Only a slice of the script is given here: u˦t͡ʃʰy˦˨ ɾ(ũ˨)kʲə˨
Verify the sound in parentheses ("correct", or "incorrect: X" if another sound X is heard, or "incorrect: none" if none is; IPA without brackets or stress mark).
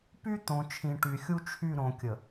incorrect: õ˨